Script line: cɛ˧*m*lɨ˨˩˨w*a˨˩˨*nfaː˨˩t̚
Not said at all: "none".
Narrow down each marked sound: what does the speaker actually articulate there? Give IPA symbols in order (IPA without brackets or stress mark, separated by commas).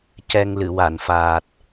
ŋ, a˨˩˨